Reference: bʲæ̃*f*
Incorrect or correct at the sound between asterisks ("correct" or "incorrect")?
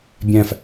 correct